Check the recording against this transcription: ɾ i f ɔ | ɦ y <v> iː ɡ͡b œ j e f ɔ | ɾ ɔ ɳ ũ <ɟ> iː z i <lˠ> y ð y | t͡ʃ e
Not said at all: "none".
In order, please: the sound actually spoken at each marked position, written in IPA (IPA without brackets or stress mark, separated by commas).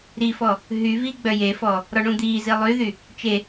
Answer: v, d̪, lˠ